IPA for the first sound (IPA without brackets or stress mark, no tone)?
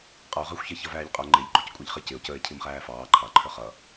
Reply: qʼ